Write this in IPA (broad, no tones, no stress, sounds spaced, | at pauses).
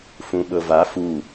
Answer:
f ũ ɓ ɤ v a f u